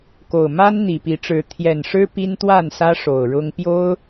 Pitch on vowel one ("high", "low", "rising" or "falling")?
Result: low